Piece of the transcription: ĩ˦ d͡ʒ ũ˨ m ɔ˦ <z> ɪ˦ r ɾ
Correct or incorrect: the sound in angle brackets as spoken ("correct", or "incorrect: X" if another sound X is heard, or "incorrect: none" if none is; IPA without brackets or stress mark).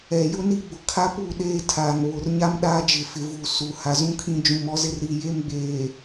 correct